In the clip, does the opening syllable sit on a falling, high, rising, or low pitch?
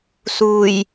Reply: low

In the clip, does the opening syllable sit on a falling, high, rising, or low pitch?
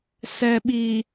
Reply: low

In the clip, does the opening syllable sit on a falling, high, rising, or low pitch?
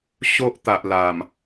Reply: high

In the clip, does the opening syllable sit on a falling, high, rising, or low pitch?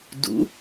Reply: rising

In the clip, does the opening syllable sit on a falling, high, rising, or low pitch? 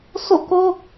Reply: falling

